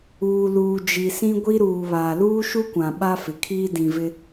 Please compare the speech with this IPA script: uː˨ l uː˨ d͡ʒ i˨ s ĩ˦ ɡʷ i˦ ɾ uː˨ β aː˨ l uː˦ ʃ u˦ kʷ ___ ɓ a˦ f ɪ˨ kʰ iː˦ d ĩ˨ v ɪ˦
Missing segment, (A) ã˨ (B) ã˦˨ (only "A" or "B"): A